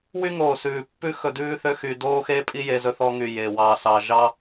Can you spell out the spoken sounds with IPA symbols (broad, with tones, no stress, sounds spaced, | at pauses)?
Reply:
w y˦ ŋ oː˨ s ʉː˨ pː ʉ˦ x ɵ˧ d ʉː˦ θ ø˦ x y˧ d oː˦ x e˦ pʼ i˦ j e˧ z ɵ˧ θ ɔ˧ ŋ y˨ j e˨ w ɑ˨˦ s ɑ˧ ʒ ɑ˦